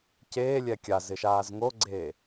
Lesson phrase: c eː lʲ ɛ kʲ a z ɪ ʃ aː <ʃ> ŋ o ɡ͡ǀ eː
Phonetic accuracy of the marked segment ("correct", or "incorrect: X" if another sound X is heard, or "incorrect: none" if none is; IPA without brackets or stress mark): incorrect: z